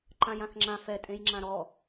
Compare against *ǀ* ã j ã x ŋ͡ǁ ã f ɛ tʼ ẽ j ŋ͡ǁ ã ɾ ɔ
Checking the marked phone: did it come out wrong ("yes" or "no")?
yes